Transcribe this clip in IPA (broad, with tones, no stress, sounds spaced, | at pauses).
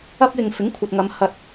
ɐ˥ p̚ j ɪ˧ ŋ f ɪ˨˥ ŋ kʷʰ ɐ˨ t̚ ŋ ɐ˨˧ m h ɐ˧ t̚